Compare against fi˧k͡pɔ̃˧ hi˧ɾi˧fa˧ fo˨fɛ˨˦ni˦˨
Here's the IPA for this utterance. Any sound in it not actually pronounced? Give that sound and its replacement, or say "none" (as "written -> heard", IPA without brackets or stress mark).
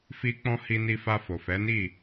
ɾ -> n